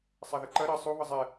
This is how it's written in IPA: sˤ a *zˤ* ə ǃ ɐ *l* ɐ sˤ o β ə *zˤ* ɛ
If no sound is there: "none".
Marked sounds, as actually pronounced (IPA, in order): ð, ɾ, zˤ

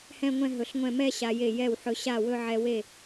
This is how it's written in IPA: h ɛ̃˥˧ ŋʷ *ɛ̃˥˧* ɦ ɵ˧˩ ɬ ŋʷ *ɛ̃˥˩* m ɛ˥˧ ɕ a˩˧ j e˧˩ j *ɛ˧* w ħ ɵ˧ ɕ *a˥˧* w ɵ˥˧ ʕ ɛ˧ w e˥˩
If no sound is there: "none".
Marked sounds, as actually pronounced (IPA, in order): ɛ̃˥˧, ɛ̃˥˩, ɛ˥˩, a˥˩

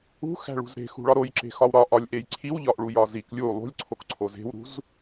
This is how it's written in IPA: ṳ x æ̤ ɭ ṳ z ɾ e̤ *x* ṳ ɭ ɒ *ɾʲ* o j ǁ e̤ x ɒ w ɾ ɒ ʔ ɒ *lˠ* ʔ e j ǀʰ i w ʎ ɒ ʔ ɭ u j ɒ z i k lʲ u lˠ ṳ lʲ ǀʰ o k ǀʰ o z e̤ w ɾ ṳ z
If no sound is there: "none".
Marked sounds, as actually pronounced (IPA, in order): x, ɾ, lʲ

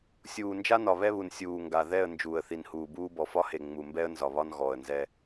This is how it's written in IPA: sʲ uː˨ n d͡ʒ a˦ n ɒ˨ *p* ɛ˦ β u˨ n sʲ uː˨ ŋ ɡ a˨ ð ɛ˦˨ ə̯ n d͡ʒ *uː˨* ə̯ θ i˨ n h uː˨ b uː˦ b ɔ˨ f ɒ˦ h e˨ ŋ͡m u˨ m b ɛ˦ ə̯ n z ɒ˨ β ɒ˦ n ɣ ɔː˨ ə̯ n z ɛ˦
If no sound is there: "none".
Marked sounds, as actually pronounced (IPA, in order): β, uː˨

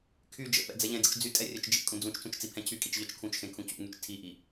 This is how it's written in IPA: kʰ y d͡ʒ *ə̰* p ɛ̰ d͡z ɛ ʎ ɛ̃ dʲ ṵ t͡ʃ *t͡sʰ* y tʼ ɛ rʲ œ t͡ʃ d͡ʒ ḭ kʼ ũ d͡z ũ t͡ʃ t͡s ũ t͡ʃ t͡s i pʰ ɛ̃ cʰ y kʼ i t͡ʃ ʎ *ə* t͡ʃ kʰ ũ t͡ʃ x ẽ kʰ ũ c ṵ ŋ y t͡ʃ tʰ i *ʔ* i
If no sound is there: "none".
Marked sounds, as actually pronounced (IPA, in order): ə̰, d͡z, œ, ʔ

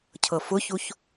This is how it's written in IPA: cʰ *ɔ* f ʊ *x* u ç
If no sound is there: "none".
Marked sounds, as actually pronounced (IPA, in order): ɤ, ç

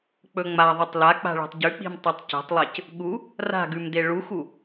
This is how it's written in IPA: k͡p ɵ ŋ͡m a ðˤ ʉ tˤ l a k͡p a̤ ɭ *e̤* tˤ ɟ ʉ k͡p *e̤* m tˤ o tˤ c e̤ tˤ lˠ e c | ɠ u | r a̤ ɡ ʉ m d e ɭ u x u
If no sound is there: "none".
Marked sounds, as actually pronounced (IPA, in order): e̤, i̤

